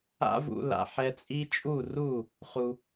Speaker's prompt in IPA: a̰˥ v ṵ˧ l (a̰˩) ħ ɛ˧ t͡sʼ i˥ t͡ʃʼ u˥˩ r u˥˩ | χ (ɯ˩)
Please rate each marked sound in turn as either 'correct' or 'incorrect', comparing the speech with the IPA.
correct, incorrect

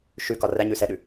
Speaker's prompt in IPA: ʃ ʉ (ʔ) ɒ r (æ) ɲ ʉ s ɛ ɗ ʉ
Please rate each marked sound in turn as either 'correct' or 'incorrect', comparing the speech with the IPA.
incorrect, correct

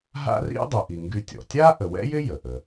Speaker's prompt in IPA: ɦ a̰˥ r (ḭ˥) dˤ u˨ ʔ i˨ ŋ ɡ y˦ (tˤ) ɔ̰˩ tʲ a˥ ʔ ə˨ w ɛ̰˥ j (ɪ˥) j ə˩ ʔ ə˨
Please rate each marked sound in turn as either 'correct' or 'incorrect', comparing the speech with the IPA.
correct, incorrect, correct

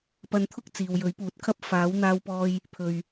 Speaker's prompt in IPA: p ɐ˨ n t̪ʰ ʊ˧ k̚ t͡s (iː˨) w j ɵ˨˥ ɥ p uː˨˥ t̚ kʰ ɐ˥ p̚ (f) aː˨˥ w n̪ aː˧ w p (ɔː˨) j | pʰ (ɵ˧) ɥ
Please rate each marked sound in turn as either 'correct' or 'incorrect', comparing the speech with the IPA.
correct, correct, incorrect, incorrect

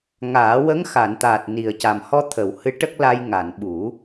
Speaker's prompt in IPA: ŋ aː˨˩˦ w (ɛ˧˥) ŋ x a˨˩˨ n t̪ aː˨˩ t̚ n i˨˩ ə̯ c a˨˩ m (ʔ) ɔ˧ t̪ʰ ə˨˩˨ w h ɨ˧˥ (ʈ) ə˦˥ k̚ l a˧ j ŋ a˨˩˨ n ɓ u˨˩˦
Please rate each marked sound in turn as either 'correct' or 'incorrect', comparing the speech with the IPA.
incorrect, incorrect, correct

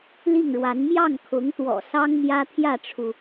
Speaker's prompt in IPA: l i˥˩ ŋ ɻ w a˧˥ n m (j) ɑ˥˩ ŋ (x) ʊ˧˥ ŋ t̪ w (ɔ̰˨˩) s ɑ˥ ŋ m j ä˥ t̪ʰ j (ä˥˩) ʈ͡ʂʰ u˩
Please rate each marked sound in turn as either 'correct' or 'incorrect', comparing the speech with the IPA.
correct, incorrect, correct, correct

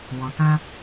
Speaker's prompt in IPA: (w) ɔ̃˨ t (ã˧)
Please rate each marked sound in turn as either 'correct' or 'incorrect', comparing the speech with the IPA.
correct, correct

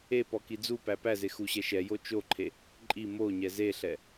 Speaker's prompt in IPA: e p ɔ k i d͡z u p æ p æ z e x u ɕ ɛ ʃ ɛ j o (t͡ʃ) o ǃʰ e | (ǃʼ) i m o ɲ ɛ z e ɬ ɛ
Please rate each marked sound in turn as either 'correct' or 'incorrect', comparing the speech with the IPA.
correct, correct

